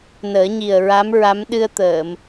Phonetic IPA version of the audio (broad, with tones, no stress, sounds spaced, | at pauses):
n əː˨˩˦ ɲ i˨˩ ə̯ ɹ a˧˥ m ɹ a˧˥ m ɗ ɨ˧ ə̯ t̪ əː˨˩˨ m